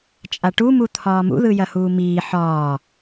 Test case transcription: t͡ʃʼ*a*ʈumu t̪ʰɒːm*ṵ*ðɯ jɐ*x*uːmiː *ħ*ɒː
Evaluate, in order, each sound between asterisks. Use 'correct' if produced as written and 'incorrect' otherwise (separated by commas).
correct, correct, incorrect, correct